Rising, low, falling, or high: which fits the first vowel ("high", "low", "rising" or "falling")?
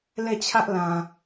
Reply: falling